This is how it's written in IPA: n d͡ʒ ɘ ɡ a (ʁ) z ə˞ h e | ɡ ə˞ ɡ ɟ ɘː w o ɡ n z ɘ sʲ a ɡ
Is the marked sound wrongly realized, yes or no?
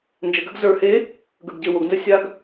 yes